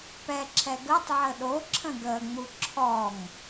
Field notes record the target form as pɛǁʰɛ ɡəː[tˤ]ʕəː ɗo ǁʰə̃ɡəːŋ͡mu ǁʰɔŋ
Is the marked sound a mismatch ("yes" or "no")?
no